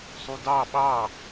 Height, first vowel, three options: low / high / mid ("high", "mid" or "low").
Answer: high